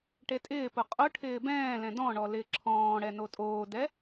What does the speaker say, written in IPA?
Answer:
ʈ e tʼ ɪː p ʊ qʼ ʊ ʈʰ ɪː b ɛ̃ː l ɛ̃ d ɔ̃ ɳ ɔ l ɪː ǁʰ ɔ̃ː ɽ ɛ n o tʼ oː d ɛ

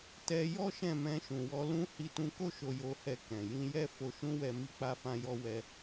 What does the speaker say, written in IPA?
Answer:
t ɛ˧ j ɔ˦ ʃ ɛ̃˦˨ m ɛ̃˧ ʃ ũ˨ w ɔ˧ l ũ˦ h i˧ t ũ˧ k o˦ ʃ o˧ j o˧ h ɛ˧ k ɛ̃˨ j ĩ˧ j ɛ˦ f o˧ ʃ ũ˦ w ɛ˧ m i˦ k͡p a˦ f ã˦ j ɔ˦ w ɛ˦

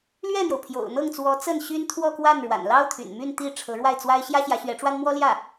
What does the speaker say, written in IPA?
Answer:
l ɥ ɛ˥˩ n̪ j o˩ ʊ̯ pʰ j o̰˨˩ ʊ̯ n̪ ɤ˥˩ ŋ t͡s w ɔ˧˥ t͡s ə˥˩ n ɕ y˥ n t̪ʰ w ɔ˥˧ k w a˥˩ n ɻ w a̰˨˩ n l ɑ˥ ʊ̯ t̪ʰ y̰˨˩ n m y˥˧ n t̪ i˥˩ ʈ͡ʂʰ ɤ˧˥ ɻ w a˥˩ ɪ̯ t͡s w a˥ ɪ̯ ɕ j ä˥ ɕ j ä˧˥ ɕ ɥ ɛ˧˥ ʈ͡ʂ w a˥ n m w ɔ˥ l j ä˥˩

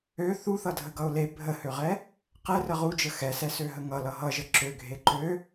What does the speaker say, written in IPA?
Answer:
ø θ u θ ʌ dʱ ə ɡ ʌ ʊ̯ l e bʱ ə h ø ʁ ɛ | q ɛ r ə ʁ u d͡ʒ ə x ɛ s ɛ s ø ɦ ə ŋ ʌ l ʌ ɦ ʌ ʒ ə ǁ ø ɡʱ e ǃ ø

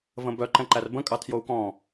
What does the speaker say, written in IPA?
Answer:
v ə̃ b œ ǃ ɛ̃ ǃ æ r b ə̃ kʼ ɑ tʰ j o u̯ k ɔ̃

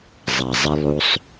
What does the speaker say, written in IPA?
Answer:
zˤ a˨ zˤ ɘ˧ lˠ u˦ sˤ

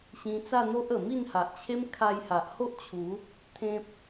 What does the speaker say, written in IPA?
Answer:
ɕ ĩ˧ t͡s a˥˧ n̪ o˦ ʔ ə˨˩ m i˥˧ n h a˨ ʔ t͡ɕʰ e˦ m kʰ a˧ j h a˨ ʔ h o˦ ʔ t͡ɕʰ u˨˦ | t̪ʰ ẽ˦ p̚

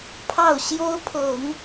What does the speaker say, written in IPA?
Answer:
pʰ ɑ˥˩ ʊ̯ ɕ j o˥ ʊ̯ pʰ ɤ˨˩˦ ŋ

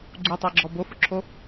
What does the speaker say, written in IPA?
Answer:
ɡ͡ǀ u tˤ ɛ ɡ͡ǁ ɔ b o f ʊ ǁʰ o

